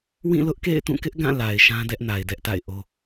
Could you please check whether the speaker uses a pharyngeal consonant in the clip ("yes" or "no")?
no